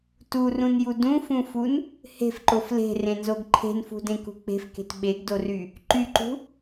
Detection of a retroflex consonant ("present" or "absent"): absent